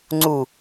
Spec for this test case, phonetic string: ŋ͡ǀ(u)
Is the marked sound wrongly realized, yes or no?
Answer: no